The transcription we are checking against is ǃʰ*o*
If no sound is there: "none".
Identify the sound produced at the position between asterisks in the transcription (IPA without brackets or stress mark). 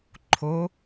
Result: o